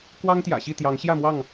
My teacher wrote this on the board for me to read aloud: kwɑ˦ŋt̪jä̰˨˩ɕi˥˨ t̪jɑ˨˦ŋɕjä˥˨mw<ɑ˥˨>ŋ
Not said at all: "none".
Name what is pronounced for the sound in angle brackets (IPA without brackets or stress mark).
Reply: ɑ˥˨